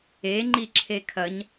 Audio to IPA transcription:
e ŋ͡ǃ i ǁʰ e kʰ ɐ ɲ

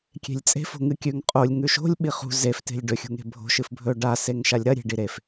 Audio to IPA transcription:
kʲ e̤ lʲ t͡sʼ e̤ f o̤ ŋ ɨ kʲ ʉ ŋ qʼ o lʲ ŋ ʉ ʃ o̤ lʲ ɓ i χ ṳ z e f t e̤ lʲ ɖ ɵ xʲ ṳ ŋ e̤ bʱ o̤ ʃ ɨ f bʱ ɵ ɖ a s e ŋ ʃ a lʲ ɾ ɐ ɾʲ e̤ ɖ i ɾ e f

